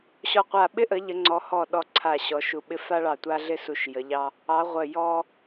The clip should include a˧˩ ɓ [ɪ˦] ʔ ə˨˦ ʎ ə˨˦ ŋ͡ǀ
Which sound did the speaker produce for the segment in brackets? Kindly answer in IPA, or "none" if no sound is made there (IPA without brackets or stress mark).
ɪ˦